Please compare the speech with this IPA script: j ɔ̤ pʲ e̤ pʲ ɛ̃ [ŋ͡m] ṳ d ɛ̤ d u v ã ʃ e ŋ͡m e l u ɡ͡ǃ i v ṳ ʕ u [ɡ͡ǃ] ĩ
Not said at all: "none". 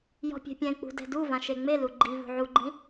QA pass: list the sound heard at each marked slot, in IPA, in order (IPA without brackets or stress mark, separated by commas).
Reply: k͡p, ɡ͡ǃ